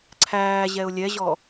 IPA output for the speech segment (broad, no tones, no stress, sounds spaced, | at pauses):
ǀʰ æː ʑ ɛ ʊ̯ lʲ ɛ ʑ ɔ